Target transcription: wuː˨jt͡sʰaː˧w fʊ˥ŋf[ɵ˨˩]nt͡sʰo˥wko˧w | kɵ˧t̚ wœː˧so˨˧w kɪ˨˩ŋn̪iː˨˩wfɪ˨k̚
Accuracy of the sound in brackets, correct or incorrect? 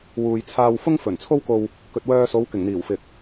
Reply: correct